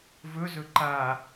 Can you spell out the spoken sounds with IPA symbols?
v ɵ z ɵ ǃ a

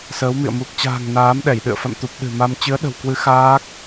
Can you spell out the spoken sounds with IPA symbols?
s əː˨˦ w m ḭ˧˨ ə̯ m u˨˩ k̚ t͡ɕ a̤ː˨˩ ŋ n aː˨˦ m ɗ ɛ˧˩ j ɗ ɨ̰˧˨ ə̯ f a̰˧˨ m t̪ u˨˩ p̚ ɗ ɨ̤˨˩ m a˧ m t͡ɕ ɨ˨˦ ə̯ ɗ ə̤˨˩ w k w ɨ˨˦ x aː˦˥ k̚

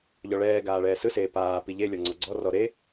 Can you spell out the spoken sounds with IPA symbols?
ʎ ɔ ɭ ɛː ɡ aː ɭ ɛː s ɯ s eː p aː p i ʎ e lʲ ɔ ŋ͡ǀ ɔ ɡ͡ǀ ɔ r ɔ ɾ e

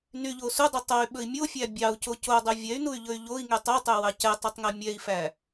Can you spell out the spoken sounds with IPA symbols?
n y ʎ o s u dˤ y tˤ o y̯ ɓ ɵ i̯ mʲ o fʲ æ bʲ ɑ u̯ c o c o dˤ y vʲ ɛ y̯ n u y̯ ʎ ɵ y̯ ʎ o i̯ ŋ y tˤ o tˤ ø w ɑ c ɛ tˤ y tˤ ŋ ɛ mʲ ɛ i̯ f æ

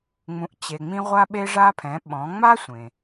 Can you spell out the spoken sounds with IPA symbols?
ŋ͡m ũ˩˧ ʔ t͡ɕ e˩ ŋ͡m ĩ˧ ʁʷ a˧ ɓ e˧ ʐ a˧ pʰ ɛ̃˩˧ ɓ ɔ̃˩˧ ŋ͡m a˥ sʷ ẽ˩

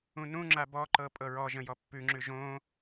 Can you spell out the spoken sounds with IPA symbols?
ũ n ũ ŋ͡ǁ a b ɔ ǃ ɤ pʼ ɤ ɹ ɔ ʒ ə̃ j ɔ pː ʉ ŋ͡ǁ ʉ ʒ õ

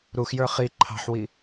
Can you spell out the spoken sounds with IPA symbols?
ɾ u x j ə˞ χ i ǃʰ ɑ̤ ħ w i

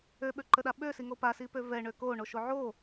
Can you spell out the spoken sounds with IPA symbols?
ø ɓ ø ǃ ə ɗ a ɓ ø s i ŋ o p a s i p ø v ɛ ɳ ø k o ɳ o ʃ o ʕ o

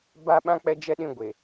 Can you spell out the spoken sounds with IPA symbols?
b a˦ ɓ ã˦ k͡p ɛ˦ d͡ʒ ɛ˦ ɗ ĩ˦ ɡʷ e˨

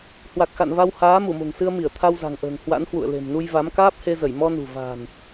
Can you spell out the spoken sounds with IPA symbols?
h w a˨˩ k̚ x a̰˧˨ n v a˧ w h aː˨˦ m u˧˩ m o̤˨˩ ŋ s ɨ˧ ə̯ m i˧˩ ə̯ t̪ʰ a˧ w z a̤˨˩ ŋ ʔ ə̤ː˨˩ ŋ h w a̰˧˥ n h w ṵ˧˨ ə̯ l e̤˨˩ m n u˧ j v a˨˦ m k aː˦˥ p̚ h e˧ z ə˧˩ j m ɔ˧ n ṳ˨˩ v a̤ː˨˩ n

